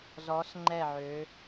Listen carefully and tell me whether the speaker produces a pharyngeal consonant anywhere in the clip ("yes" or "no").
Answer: yes